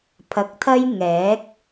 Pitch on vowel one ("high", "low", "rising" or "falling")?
low